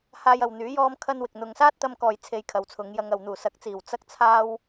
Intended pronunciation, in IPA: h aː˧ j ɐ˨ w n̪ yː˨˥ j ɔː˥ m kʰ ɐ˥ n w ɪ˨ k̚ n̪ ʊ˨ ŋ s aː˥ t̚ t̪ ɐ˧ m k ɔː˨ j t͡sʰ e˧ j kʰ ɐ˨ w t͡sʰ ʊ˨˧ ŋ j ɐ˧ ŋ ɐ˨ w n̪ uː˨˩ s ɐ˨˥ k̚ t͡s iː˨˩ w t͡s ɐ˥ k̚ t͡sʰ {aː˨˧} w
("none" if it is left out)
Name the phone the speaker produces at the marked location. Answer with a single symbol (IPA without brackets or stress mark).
aː˥